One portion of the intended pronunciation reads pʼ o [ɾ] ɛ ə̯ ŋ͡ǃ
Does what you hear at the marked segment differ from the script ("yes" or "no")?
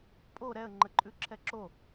no